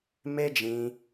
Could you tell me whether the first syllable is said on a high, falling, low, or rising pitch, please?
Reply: high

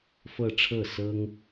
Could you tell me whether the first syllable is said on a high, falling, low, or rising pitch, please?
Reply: falling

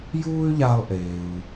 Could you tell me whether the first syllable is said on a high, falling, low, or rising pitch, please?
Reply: high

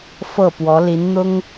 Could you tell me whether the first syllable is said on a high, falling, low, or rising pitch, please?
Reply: falling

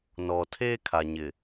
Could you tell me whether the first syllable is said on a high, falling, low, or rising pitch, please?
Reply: low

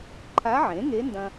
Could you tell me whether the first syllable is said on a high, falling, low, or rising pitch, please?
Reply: rising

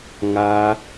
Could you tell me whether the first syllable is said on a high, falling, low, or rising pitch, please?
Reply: high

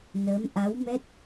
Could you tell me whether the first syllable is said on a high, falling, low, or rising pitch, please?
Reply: rising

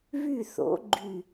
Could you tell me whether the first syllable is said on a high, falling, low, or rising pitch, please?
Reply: falling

